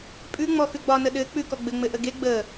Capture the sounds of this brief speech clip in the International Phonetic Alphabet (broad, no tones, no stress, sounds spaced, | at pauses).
pʼ ʉ ŋ͡m ɔ x ʉ ɡ͡b ɒ n ə ɗ ɘ k͡p ʉ k ɔ ɡ͡b ɘ ŋ͡m ɘ ʔ ə ɡ e ɡ͡b ə